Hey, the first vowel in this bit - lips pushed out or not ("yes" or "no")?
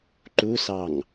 yes